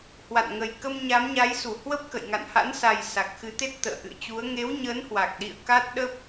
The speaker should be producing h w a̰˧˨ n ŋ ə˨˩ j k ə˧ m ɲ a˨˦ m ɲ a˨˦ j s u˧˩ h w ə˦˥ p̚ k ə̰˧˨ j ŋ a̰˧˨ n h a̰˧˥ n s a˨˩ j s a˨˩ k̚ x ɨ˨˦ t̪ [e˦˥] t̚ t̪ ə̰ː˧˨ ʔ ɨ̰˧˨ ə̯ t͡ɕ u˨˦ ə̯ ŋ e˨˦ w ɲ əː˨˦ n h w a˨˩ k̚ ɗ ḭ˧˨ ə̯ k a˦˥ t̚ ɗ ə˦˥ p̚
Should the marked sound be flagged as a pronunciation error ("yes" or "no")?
no